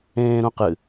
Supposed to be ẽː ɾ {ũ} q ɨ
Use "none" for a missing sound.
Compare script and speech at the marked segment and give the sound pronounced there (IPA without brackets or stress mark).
ũ